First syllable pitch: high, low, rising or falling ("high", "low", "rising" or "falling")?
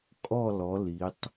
falling